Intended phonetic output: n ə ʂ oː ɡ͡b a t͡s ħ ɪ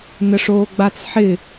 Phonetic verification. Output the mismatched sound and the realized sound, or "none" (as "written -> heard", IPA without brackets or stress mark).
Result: none